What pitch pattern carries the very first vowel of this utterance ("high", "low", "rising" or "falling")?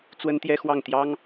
high